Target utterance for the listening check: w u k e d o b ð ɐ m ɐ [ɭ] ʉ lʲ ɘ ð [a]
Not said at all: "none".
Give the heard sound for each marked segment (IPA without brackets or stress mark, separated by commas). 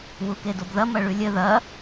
ɭ, ɐ